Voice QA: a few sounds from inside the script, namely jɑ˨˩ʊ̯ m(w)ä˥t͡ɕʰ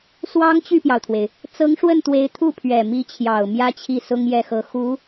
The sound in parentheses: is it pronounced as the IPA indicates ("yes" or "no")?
no